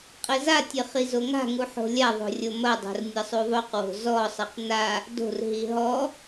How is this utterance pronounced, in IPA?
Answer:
qʼ ɘ z a tʲ ɘ χ i z o ŋ a̤ ŋ u ħ o̤ lʲ a ðˤ o̤ rʲ o m ɐ dˤ o̤ r nʲ ɐ sˤ u ðˤ o q w o̤ z ɔ sˤ ɘ q n a | d o̤ r ɦ i ɦ ɔ

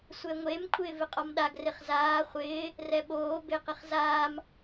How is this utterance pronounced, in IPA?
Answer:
sʷ ɛ ŋʷ e m kʷʰ ɪː v ɪ qʼ ɔ m ɗ a ɡ r ɪ χ z aː χʷ ɪː | r ɛ ɓ oː b e q ɪ χ z aː m

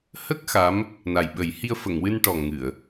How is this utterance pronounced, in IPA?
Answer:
h ə˦˥ k̚ x a˧˥ m | n a˨˩ j ɓ ə˨˩˦ j h i˧ ə̯ f ə˨˩˨ ŋ w ɨ˧ n ʈ ɔ˨˩ ŋ ɨ˨˩˨ ə̯

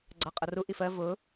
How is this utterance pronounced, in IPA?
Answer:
ɡ͡ǀ ɑ qʼ ʌ r u ʔ i f ɜ v ʊ

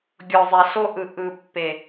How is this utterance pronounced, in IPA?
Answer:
ɡʲ ɔ˨ zˤ ɛ˨ ɬ o˦ ʔ ɯ˨ ʔ ɯ˨ pː e˨

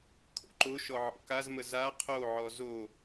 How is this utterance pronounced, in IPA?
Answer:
kʰ o̰ ǃ o ʃ ɔ ʕ ɔ̰ k a z m ə z a qʰ o ʕ ɔ z o

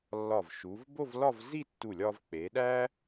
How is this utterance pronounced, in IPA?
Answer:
lː ɒ˧˩ v ʃ u˩˧ v b o˥˧ v l ɒ˥˧ v z i˥˧ tː u˧˩ lʲ ɒ˧ v k͡p e˩˧ ɗ æ˥

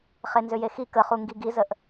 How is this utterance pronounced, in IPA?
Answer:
χ e n z ʏ j e x i k ə χ u ŋ ɡ i ɡ i z ə ʔ

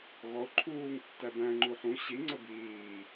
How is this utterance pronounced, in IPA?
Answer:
ɣ ɔ ʊ̯ ǃʰ uː ŋ tː æ b æ̃ ŋ͡ǃ u ħ ũ ɕ i ŋ͡ǀ ə b iː

